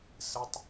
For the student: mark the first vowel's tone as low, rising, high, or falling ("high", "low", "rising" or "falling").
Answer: low